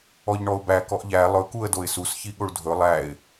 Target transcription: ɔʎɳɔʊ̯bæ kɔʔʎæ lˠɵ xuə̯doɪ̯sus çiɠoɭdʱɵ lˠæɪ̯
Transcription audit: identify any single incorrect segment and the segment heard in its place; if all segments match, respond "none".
x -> k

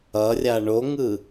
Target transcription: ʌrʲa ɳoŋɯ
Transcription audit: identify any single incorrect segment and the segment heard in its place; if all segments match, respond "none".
none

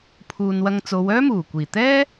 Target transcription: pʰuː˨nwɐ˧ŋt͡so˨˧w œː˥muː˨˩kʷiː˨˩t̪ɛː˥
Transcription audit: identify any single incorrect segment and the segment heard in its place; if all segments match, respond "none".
none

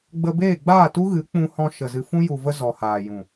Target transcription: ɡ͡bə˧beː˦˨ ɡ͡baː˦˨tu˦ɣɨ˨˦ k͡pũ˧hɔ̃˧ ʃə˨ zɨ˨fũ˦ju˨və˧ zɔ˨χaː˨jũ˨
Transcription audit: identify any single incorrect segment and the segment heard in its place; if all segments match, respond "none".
χ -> h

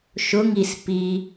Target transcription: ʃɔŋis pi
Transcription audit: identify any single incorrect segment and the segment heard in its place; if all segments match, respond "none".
ɔ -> ʊ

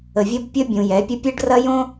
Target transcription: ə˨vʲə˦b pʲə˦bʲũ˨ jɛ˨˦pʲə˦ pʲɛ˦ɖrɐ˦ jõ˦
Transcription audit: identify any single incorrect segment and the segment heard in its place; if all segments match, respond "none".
none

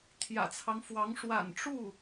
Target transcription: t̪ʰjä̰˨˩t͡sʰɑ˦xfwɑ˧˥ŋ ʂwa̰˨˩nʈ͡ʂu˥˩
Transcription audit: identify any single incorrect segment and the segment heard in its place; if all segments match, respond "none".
x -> ŋ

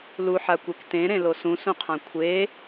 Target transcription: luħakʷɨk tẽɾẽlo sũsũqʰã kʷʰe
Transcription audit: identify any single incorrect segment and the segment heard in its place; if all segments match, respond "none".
ɨ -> e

